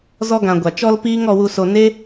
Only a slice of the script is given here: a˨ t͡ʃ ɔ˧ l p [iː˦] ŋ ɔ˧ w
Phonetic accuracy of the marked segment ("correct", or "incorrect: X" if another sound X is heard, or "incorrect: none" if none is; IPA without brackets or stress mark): correct